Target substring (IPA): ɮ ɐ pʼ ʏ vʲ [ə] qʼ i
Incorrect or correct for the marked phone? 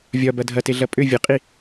correct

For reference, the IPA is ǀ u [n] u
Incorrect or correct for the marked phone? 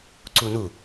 correct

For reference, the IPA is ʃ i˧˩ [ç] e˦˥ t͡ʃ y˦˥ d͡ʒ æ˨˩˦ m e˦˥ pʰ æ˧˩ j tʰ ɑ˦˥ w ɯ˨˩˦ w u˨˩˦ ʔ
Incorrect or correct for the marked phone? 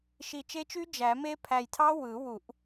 incorrect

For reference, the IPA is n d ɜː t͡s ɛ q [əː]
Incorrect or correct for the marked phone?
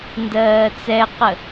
incorrect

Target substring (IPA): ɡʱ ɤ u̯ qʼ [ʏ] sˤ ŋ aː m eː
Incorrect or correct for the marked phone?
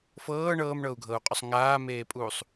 correct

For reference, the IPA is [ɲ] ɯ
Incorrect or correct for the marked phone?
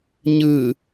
correct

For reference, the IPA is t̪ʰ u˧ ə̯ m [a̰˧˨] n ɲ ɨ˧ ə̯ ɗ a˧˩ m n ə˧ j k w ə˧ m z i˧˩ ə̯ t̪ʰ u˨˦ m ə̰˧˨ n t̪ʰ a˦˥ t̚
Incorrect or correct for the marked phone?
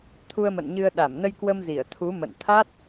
incorrect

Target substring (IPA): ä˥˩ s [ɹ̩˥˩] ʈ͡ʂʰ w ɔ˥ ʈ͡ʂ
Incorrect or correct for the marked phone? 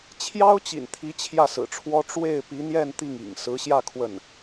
incorrect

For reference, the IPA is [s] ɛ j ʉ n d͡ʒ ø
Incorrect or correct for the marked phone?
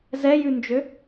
incorrect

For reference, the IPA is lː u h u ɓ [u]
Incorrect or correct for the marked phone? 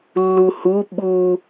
correct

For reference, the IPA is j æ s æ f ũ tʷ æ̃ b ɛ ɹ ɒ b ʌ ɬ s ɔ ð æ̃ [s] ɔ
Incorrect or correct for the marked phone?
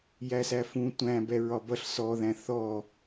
incorrect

